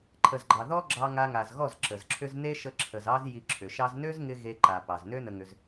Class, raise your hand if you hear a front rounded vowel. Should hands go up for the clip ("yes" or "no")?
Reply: yes